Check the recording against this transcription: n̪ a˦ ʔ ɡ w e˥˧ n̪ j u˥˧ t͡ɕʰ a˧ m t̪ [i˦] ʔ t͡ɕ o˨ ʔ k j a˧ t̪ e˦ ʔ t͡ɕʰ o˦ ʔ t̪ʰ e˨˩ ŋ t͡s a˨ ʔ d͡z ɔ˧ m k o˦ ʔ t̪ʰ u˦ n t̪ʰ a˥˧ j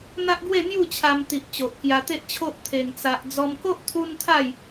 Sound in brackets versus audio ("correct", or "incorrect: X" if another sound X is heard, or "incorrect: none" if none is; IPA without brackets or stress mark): incorrect: i˨